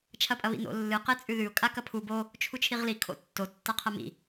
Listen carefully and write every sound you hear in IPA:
t͡ʃʰ ɐ pʼ ɐ β ḭ n o̰ lː ɨ q e t͡sʼ ʉ ð ʉ ʊ̯ kʼ a k ɐ pʰ u b o | t͡ʃʰ u t͡ʃʰ i ʁ l i kʰ o̰ tː o tː a qʰ ɐ m ḭ

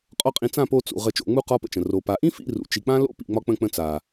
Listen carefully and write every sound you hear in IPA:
qʼ ɒ˦ qʼ ĩ˧ t͡s ã˦˨ p o˧ t͡s ṵ˨ ʁ ə˧ t͡ʃ o̰˧ ŋ͡m u˦ q ɒ˦ p ə̰˧ t͡ʃ ə̃˨ r o˨ p a˨ ʔ ĩ˦ f ḭ˦˨ r ṵ˨ t͡ʃ i˨ k͡p ã˦ l o̰˦ p ḭ˦˨ ŋ͡m ɒ˦ k͡p ə̃˦˨ k͡p ə̃˧ t͡s a˨

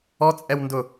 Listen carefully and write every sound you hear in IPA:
ɔ t͡sʼ ɛ w n d ʊ

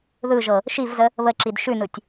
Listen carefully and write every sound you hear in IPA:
ð ɯ ʒ ɤ | ʃ i v z ə | β ə ǁ i d ʃ ʉ n ɯ tʲ

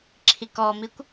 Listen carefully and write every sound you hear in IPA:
ǁʰ i k ɔ m i kʷ

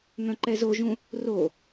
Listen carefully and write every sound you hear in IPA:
ŋ œ̃ ǃ ɛ z o ʒ ũ | r o

